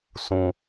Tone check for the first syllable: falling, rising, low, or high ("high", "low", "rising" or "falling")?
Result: low